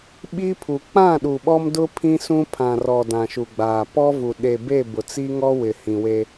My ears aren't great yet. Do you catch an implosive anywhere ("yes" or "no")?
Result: yes